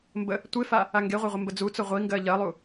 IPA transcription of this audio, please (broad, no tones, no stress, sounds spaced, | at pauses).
m b ə | tʷ e f a | a ŋ ɡ e ʁʷ ɛ ʁʷ ə m b ə d͡z u t͡s ʊ ʁʷ i ŋ ɡ ɜ ʎ ɜ lˠ u